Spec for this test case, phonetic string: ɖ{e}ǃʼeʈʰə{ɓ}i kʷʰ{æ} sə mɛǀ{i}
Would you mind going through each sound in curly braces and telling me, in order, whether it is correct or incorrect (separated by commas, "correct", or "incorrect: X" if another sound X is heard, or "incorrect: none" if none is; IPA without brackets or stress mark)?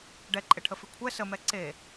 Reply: incorrect: ɛ, incorrect: f, incorrect: ɛ, incorrect: e